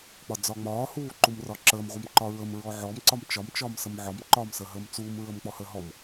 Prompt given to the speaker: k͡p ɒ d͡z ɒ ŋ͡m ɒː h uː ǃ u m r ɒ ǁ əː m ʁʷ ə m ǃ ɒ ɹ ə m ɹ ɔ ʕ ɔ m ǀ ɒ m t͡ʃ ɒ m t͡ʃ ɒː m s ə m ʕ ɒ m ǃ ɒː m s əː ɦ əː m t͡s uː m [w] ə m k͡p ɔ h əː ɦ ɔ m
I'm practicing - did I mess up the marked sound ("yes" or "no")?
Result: yes